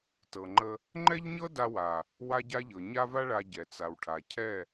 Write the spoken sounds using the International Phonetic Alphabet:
tɤ˨ŋ͡ǃə˧ | ŋ͡ǃɛ˦ʎɲɤ˦ da˧wa˨ | wa˦ɟa˦ʎɤ˨ ɲa˦va˦ ɭa˧ ɟɛ˨t͡sa˨wʈʰa˨ cʰɛ˦˨

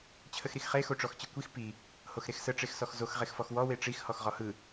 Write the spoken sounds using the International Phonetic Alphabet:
t͡ɕʰəxɾixχe xoʈ͡ʂɔxt͡ɕɯkʷix pi | hoxɾexsə ʈ͡ʂexsɔxzox ʁexfɔxwɔ weʈ͡ʂix hɔxʁɔhɯ

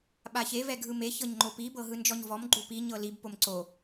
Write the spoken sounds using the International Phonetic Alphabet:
ɓaçe vɛɡʱɯme çɤɲŋ͡ǃopi bɤɦɯnd͡ʒɔɲvɔm ɡ͡ǃupi ɲɤlib pomǀo

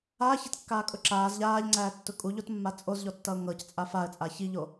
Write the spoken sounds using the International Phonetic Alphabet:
aːçatkːaːkʼʊ ǁaːz ʎaːʎŋ͡ǀæːtːʊ kʼuʎotmːa t͡sʼozʎɔtːʌʊ̯ ŋɤct͡sʼa faə̯t͡sʼa çiʎo

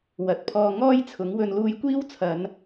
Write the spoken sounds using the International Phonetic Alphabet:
wɐ˨˥t̚pʰɔː˧ ŋɔː˥jt͡sʰʊ˨˥ŋ wɵ˨˧nluː˧jkʷiː˥w t͡sʰɐ˨˧n

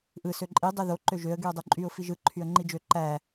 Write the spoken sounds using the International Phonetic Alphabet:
ʔɯ søǃʼi dˤeðo ǃøʒøə̯ ɡyə̯dˤoǃʼyʊ̯ fiʒɯ ǃʰyə̯ŋ͡ǃid͡ʒø ǃæ

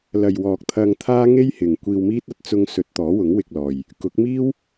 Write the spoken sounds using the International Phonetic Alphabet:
lɐ˨jwɔː˨k̚ t̪ʰɐ˧ŋt̪ʰaː˥ ŋe˥jhɪ˨ŋ kʷiː˧wmiː˥t̚ɐ˧t̚ t͡sʊ˧ŋsɵ˨˥t̚ t̪ɔː˨˥wʊ˨˥ŋwɪ˧k̚lɔː˨j | kʊ˨˥k̚miː˥w

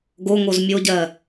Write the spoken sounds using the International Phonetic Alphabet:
ɡoŋoz mʲoɟɜ

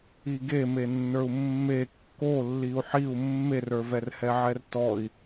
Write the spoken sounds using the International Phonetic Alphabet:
iɡemenːə˞u̯ mːe kːo lːiu̯ħiu̯ mːerə˞vɛrhɛ ʕɛrtɔi̯

